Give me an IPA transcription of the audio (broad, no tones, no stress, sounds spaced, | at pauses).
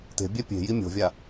t e̤ bʲ ɛ pʲ e̤ j i mʲ o̤ vʲ a